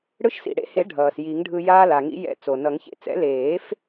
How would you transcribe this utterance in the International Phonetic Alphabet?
ɽ ɯ˧ ʃ s ḭ˩ ɽ ḛ˧ h e˨˩˦ ɖʱ ʌː˩ s j i˨˩˦ ŋ ɖʱ ɯ˧ j aː˧ l a˩ ŋ ḭ˨˩˦ j ɛ̰˨˩˦ t͡s o˩ n ʌ˨˩˦ ŋ ç ḛ˧ t͡s ɛ̰˨˩˦ l eː˨˩˦ f

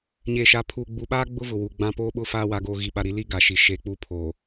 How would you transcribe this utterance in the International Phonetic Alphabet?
ɲ eː˨ ʃ aː˨ pʰ uː˨ ɡ͡b u˨ ɓ aː˦ ɡ͡b ʊ˦ v ʊ˨ w u˨ ɡ͡b ã˦ p oː˦ ɓ ʊ˦ f aː˦ w aː˦ ɡ oː˦ ɣ i˦˨ ɓ a˦ ɾ i˦ l i˦ ɡ a˨ ʃ i˨ ʃ eː˦ k͡p uː˦ pʰ oː˨

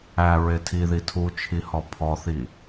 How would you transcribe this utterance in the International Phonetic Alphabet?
æ ɹ e tʰ i ð i tʰ u t͡ʃʰ i h ɔ pʰ ɔ θ i

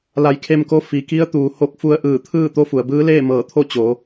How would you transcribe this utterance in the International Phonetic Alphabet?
l a˧˩ j kʰ e˧ m k o˧˥ f i˩ k i˧˥ ə̯ t̪ uː˩ h o˧˩ k̚ f u˧ ə̯ ʔ ɯː˧˩ t̪ʰ ɯː˥˨ t̪ o˧˥ f u˩ ə̯ b ɯː˧˥ l eː˥˨ m ɤː˧˩ t̪ʰ o˥˨ t͡ɕ o˩˧

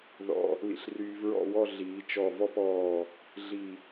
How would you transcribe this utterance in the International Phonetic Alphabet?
ð ɔ̰˧ | l ḭ˧ ɬ r yː˧ v ɹ ɔ̰˥˧ w ɔ˥˧ ɮ iː˩˧ t͡ʃ ɔ˧˩ v ɔ˥˧ p ɔː˧˩ | ɮ i˧˩

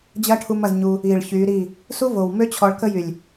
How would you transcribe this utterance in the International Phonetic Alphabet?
d͡ʑ ɐ˦ ʈʰ u˧ m ɐ˧ z ɲ u˧ | i˨ ɭ ç y˨˦ ɾ i˦˨ | s u˦ v o˨ w m ø˦ t͡ɕʰ ɔ˧ ɭ k ə˦ j y˨ lʲ

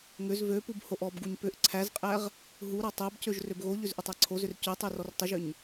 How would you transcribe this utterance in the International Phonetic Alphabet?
ŋ ʏ z v ø p u b h o ʔ ɔ b ɡ u ɲ p ʏ ʔ ǀʰ æ z qʼ æ ʁ | ɦ u ɾ ɔ tˤ æ b c ø ʒ r ø b ɣ o ʎ ʏ z ʔ ʏ tˤ æ ǀʰ o z ʏ r c ø tˤ ø r ɔ r tˤ ʏ ʒ ʏ ɲ

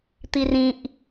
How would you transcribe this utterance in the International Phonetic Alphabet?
t̪ i r ĩ ʔ

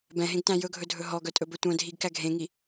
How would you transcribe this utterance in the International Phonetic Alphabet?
b ɛ̃ ɦ ẽ ɡ t æ̃ j ɵ ɡʱ ɵ dʱ ɵ ɦ ɔ ɡ œ tʼ ɵ b ɵ tʷ œ̃ dʱ i ɡ k æ ɡʱ ẽ ŋ i

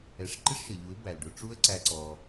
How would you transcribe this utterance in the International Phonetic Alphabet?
ɛ˧ ʂ ǃ ɪ˦ ʂ ʃ ə˨ ʎ u˨˦ ɪ̯ b æ˨ l ɖ ʊ˧ ʈ͡ʂ u˦ ə̯ ǀ æ˦ ǀ ɔ˧

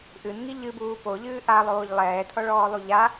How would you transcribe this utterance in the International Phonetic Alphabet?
ʔ ɨ n ŋ i ʎ ɨ b uː p o ʎ ɨː ʔ a lˠ oː ʎ lˠ ɛː tʰ ɔ ɭ ɔː lˠ u ʎ a

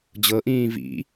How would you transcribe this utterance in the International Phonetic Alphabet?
d͡ʑ ɤ ʔ ĩː v ḭ

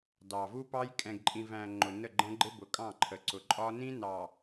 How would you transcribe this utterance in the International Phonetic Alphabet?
d ɑ˨ v u˦ p ɑ˦ j kʼ ɛ̃˨ ɡ ǃʼ ĩ˨ v æ̃˨ ŋ͡ǃ ʊ˨ n ə˦˨ ɡ͡ǃ ɛ̃˦ ɡ͡ǃ ɪ˦ b ʊ˨ kʼ ɑ̃˦˨ ǃʰ ə˨ ǀ ʊ˨ ǃʼ ɒ˦ n ĩ˦ n ɑ˨

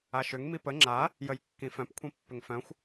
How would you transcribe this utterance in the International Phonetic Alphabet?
a ʃ ʏ ŋ m i p ə ŋ͡ǁ a | j ə j kː ĩ f œ̃ p kʷʰ ĩ pː ʏ ŋ f œ̃ xʷ

